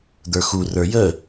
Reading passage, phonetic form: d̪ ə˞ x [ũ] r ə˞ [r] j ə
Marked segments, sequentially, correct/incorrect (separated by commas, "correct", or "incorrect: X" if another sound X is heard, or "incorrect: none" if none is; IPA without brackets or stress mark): incorrect: u, incorrect: none